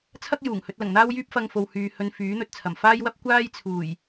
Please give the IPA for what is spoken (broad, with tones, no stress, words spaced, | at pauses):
t͡sʰɐ˥k̚ juː˨˩ŋ hɵ˧t̚ lɐ˨˩ŋn̪aː˥wjyː˥p̚fɐ˧ŋ fo˨w hyː˨ hɵ˧n fyː˨˥n̪ɵ˨t̚t͡sʰɐ˨˩m faː˥jwɐ˥p̚ kʷaː˥jt͡sʰuː˨˩j